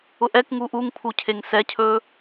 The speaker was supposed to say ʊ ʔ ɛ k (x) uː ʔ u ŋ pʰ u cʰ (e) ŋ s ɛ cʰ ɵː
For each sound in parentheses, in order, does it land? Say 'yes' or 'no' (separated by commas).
no, yes